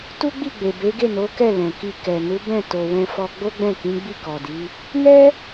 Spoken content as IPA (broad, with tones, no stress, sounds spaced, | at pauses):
t u˦ ɡ͡b i˦˨ ɡ͡b e˨ b e˨˦ ɡ e˦˨ n o˨˦ k ɛ˦˨ l ɛ̃˨ k i˧ k ɛ˨ n u˨˦ b ɛ̃˦˨ t o˨ w ɛ̃˧ f ɔ˧ ɡ͡b o˦ ɡ͡b ɛ̃˦˨ k ĩ˨˦ ɡ͡b i˦˨ k ɔ˨ d i˨˦ | n ɛ˦